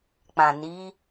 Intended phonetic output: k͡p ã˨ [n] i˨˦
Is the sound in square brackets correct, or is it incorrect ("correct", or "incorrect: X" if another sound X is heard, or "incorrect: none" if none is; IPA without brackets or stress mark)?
correct